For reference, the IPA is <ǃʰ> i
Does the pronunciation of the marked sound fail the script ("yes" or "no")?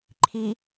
no